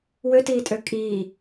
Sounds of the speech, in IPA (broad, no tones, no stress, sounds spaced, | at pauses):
w ø t iː tʼ ø kʼ iː